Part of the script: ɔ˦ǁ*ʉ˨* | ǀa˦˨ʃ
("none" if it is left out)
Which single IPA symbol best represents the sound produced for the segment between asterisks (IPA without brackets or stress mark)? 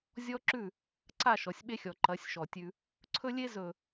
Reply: ʉ˦˨